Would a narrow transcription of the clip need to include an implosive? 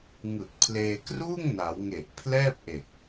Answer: no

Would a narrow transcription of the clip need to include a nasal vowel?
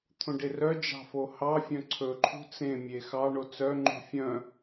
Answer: yes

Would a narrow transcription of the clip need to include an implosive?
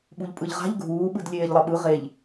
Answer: yes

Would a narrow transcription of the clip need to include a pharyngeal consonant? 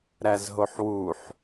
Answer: yes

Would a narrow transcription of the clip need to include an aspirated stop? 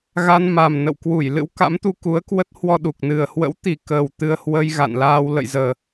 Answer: no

